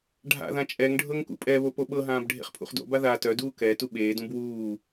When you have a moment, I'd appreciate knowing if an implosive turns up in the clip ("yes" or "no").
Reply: yes